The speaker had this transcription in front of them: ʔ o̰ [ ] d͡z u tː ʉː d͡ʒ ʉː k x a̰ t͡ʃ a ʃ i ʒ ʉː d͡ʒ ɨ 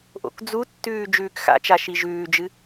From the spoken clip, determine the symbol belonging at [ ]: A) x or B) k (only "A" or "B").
B